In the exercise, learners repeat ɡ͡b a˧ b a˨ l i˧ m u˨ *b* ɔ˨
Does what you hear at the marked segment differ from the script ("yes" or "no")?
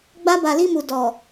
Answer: yes